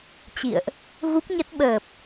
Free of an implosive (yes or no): no